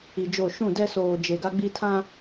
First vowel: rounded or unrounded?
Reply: unrounded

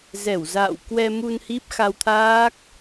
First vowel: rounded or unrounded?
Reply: unrounded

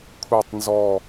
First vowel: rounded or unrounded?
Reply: unrounded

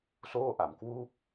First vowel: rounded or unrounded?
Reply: rounded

